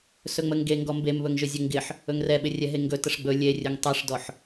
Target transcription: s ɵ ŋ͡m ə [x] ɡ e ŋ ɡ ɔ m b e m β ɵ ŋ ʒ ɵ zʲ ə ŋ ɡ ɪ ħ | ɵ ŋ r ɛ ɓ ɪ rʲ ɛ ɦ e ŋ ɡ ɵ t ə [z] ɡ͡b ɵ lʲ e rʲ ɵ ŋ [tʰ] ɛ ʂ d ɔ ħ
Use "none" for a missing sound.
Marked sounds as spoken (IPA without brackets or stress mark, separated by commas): ŋ, ʂ, tˤ